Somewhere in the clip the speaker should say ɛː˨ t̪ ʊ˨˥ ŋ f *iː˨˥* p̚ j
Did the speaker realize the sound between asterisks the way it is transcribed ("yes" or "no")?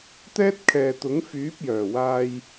no